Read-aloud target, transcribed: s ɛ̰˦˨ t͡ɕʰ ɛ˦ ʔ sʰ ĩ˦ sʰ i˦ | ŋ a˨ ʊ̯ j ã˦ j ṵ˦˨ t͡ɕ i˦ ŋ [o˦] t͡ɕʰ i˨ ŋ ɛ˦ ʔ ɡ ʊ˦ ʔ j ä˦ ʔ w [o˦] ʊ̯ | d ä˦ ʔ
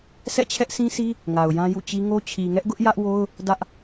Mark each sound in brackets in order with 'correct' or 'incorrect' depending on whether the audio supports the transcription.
correct, correct

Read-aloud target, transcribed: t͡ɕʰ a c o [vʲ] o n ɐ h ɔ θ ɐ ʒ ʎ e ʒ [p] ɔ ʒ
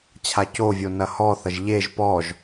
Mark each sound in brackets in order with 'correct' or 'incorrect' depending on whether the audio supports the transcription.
correct, correct

